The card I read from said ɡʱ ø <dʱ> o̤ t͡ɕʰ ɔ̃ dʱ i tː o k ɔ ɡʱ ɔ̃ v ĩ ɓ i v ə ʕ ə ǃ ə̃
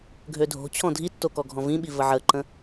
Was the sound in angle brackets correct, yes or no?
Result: yes